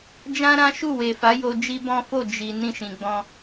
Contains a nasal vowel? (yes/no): yes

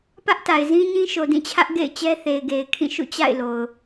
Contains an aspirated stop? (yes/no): yes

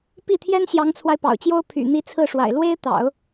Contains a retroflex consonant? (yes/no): yes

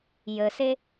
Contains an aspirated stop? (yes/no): no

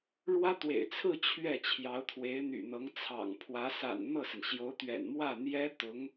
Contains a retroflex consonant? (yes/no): yes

